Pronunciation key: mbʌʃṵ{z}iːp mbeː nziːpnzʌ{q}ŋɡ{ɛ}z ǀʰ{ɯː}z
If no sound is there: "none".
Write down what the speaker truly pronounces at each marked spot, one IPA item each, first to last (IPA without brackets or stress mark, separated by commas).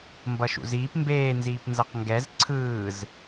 z, q, ɛ, ɯː